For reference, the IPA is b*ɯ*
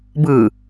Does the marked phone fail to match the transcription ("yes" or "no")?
no